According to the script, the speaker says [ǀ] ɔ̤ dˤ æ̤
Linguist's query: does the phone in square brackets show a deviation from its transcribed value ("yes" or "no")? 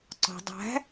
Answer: no